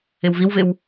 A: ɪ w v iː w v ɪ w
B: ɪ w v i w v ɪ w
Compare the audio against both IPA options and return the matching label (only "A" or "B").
B